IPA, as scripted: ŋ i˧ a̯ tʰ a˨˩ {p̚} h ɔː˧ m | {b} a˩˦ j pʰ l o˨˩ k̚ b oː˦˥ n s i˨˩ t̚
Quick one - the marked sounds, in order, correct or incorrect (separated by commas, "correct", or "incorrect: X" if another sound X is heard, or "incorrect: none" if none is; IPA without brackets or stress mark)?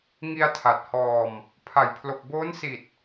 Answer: incorrect: t̚, incorrect: pʰ